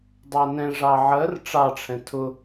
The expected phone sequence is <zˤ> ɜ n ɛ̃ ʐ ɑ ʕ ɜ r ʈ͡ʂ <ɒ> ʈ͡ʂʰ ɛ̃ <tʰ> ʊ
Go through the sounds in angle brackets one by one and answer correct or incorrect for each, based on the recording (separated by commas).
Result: incorrect, incorrect, correct